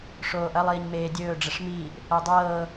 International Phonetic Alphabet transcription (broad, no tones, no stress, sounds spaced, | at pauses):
ʂ oː ʔ ɐ lˠ iː ɲ m eː dʲ ɵː ɖ͡ʐ ə ʂ m iː ʔ | ɤ dˤ ɤː